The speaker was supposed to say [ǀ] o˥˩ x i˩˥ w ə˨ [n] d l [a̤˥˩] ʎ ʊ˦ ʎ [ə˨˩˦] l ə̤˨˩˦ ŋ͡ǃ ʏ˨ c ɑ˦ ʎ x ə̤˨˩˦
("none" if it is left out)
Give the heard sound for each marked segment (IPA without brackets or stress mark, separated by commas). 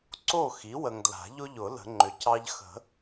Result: ǀ, ŋ, a̤˨˩˦, ʊ˨˩˦